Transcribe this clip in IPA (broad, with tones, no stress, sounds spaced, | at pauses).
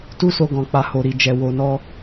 t u˦ s o˧ ɡ ɔ̃˨ k͡p a˨ h o˨ ɾ i˨ d͡ʒ ɛ˨ w o˨ n ɔ˧